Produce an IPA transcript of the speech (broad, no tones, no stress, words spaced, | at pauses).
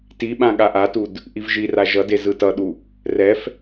tiɓã ɠaʔatud | ʔivʒira ʒʌde zɯtʌɗu | rɛf